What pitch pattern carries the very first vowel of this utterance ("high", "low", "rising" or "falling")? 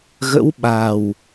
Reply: rising